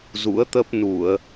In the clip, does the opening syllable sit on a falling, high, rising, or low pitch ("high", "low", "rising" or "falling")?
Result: rising